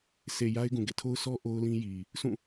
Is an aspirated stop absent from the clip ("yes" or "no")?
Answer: no